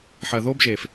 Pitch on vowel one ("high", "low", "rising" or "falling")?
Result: low